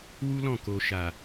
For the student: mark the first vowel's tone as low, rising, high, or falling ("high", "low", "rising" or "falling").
high